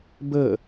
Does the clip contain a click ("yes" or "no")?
no